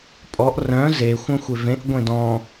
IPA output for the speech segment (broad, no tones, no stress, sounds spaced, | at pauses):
pʼ ɔ ʔ r œ̃ z e xʷ œ̃ xʷ e v ẽ ʔ ɡʷ ẽ d ɔ̃